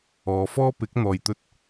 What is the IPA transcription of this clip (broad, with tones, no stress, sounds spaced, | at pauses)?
ɔː˨˧ f ɔː˥ p ɪ˨˥ k̚ n̪ ɔː˨ j t̪ ɵ˧ t̚